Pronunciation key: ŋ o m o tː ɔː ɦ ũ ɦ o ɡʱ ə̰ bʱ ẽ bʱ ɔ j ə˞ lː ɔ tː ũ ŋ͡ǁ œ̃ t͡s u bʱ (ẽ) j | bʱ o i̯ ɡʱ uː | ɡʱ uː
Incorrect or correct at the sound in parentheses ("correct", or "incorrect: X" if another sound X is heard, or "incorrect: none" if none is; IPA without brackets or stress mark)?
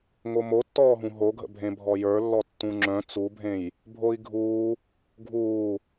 correct